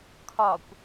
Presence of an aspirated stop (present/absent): present